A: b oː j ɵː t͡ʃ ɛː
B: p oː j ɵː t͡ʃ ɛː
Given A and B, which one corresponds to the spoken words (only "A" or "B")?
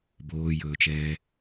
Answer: A